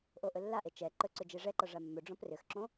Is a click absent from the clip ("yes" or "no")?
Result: no